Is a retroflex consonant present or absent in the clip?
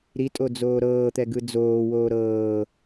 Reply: absent